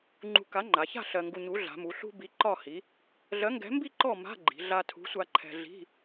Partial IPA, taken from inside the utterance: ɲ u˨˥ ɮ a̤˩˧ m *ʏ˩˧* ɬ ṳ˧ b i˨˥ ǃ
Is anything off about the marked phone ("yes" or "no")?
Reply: yes